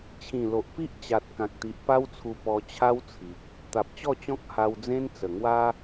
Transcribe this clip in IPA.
t͡ɕʰ ĩ˨˩ l o˨ ʔ p i˦ ʔ t͡ɕ a˨ t̚ k ã˨ k̚ t̪ i˨ ʔ p a˦ w t͡sʰ u˧ p ɔ˧ t͡ɕʰ a˦ w t͡sʰ i˨ k̚ | t̪ a˨ p̚ t͡ɕ ɔ˥˧ t͡ɕ ɔ̃˦ k̚ h a˧ w d͡z ẽ˦ n t͡s ə˨˩ ŋ w a˦

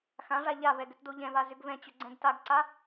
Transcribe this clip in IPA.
x ã ʐ a ʎ a v ɛ ɡ ʏ t d o ʎ ɛ̃ v a z ʏ ɡ v ɛ̃ t͡ɕ ʏ ɡ͡ǀ ɛ̃ ɡ t a ɡ ǀ a

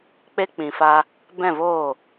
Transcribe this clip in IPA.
k͡p e˧ k͡p ĩ˨ f a˧ | b ɛ̃˦˨ v oː˦˨

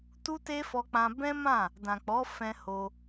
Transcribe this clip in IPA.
t u˦ t e˦ f ɔ˧ k͡p ã˧ b ɛ̃˦ m ã˦˨ | d ã˨ k͡p ɔ˨˦ f ɛ̃˧ h o˧

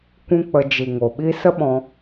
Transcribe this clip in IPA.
kʷ ũ˦ k͡p ə˧ d͡ʒ i˨ ŋ o˨ ɓ i˧ s ə˦ ɓ ɔ̃˧

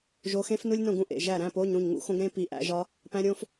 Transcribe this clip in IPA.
ʒ o˨˦ x ẽ˦˥ f n u˦˥ lʲ n õ˥˩ ɡ ũ˥˩ ʔ ḛ˩˧˩ ʒ æ˥˩ ɾ æ̃˧˥˧ p o˧˥˧ ɲ ɾ ũ˥˩ ɲ ŋ ṵ˦˥ x õ˦˥ ɡ ɾ ẽ˦˥ p i˨˦ ʔ æ̰˨˦ ʒ ɒ˦˥ | p æ̃˨˦ ɾʲ õ˨˦ f

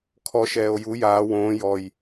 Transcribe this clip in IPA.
kʰ ɔ ʃ ɛː o̯ j u j aː w õː j ɔ j

